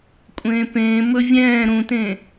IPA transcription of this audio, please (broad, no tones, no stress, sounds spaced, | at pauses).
kʷʼ ẽː p ẽː m ɵ vʲ ɛ̃ː ɾ ũ t ẽ